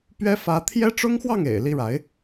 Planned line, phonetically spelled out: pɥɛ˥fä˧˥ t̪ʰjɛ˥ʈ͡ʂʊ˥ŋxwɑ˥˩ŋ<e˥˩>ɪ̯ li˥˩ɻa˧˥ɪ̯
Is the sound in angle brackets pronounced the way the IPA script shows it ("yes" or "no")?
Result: no